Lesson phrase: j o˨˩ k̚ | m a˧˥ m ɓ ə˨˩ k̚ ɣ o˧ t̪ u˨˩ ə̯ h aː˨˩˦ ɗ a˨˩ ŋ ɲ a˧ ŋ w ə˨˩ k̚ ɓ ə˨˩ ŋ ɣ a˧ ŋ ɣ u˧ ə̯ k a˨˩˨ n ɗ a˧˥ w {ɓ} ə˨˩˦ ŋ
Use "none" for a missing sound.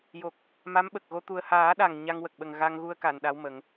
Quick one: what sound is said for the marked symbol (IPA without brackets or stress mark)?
m